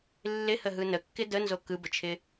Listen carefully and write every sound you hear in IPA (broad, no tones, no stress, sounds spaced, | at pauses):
lː ɪ h ə ɦ ɯ n ə kː ɪ d ə n z o k ɯ b ə t͡ʃʰ ɪ